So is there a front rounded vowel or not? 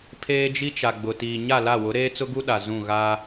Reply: no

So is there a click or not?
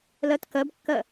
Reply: no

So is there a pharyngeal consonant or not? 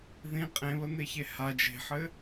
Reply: yes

